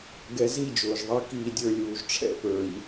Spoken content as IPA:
ɡ ɛ˨ z i˦˨ d͡ʒ ʊː˨ ʒ ðˤ i˦˨ k iː˦˨ dʲ ə˞˦ lʲ uː˨ ʒ ʈ͡ʂʰ ɛ̰˦ p ə˞˨ ʎ

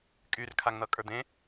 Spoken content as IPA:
kʼ y r kʰ a ŋ n̪ ʌ kʼ ə˞ d̪ ẽ

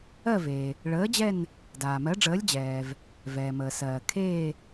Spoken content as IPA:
ɜ˦˨ v eː˩ | ɭ əː˨˥ d͡ʑ ɛ˦˨ n | d aː˩ m ɜ˨˥ ɖ͡ʐ əː˨˥ lʲ d͡ʑ ɛː˩ v | v ɛː˩ m əː˩ s ɜː˩ kʰ eː˦˨

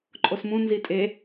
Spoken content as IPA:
ǃʼ o s m ũ n z i tʼ e

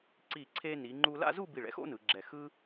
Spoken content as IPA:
ǀ iː˧˩ ǀʰ eː˧ n iː˩˧ ŋ͡ǃ uː˧ l a̰˥˧ z u˥˧ b i˧˩ ɭ ɛ̰˥ x o̰˥ n ɯ˩˧ ɡ͡ǁ ɛ˧˩ x ɯ˥

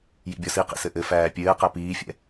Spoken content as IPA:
j ḭ bʲ ɔ s i q ḭ s ɘ ʔ ɘ f æː pʲ ɘː q æ p iː fʲ ɛ̰

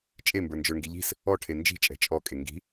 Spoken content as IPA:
t͡ʃʼ e m b ə˞ n d͡ʒ ə˞ ŋ ɡ i ʎ i̤ s | ɔ ʈʰ e n d͡ʒ i̤ t͡ʃʼ ɛ̤ t͡ʃʼ ɔ kʼ e ŋ ɡ i̤

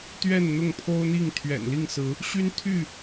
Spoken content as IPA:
t̪ ɥ ɛ˥˨ n n̪ ʊ˥˨ ŋ pʰ o˦ ʊ̯ n̪ i˥˨ ŋ t̪ʰ ɥ ɛ̰˨˩ n l i˥˨ ŋ s ɹ̩˨˦ | ɕ y˦ n t̪ʰ y˥˨

